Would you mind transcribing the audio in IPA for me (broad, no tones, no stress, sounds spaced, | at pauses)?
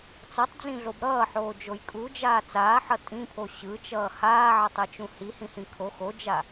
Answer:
t͡s ʌ tˤ d͡z ĩ ɮ o b ɾ ʌː ħ oː d͡ʒ o j kʼ u d͡ʒ aː t͡s aː ħ ʌ tʼ ĩ pʰ o ɕ ɯ t͡ʃ ʌː h aː ʕ ʌ tˤ e t͡ʃ ũ h i h ĩ h ĩ kʰ o x o d͡ʒ a